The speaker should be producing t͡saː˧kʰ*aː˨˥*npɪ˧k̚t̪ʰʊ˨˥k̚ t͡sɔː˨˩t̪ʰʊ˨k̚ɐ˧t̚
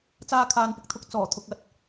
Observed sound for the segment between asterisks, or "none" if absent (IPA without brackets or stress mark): aː˨